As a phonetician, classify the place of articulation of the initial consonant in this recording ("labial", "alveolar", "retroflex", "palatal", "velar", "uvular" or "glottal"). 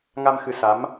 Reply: velar